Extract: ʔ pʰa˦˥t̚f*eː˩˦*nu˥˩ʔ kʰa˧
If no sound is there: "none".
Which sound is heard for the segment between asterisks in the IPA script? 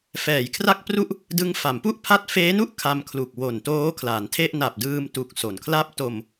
eː˦˥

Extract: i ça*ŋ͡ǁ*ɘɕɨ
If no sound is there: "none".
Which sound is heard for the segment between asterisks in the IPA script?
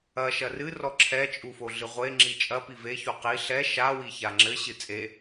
ŋ͡ǁ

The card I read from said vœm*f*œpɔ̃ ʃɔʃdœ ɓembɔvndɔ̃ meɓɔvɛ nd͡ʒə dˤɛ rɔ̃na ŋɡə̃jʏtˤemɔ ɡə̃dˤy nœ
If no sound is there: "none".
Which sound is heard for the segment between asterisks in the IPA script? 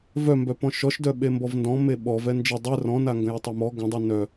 b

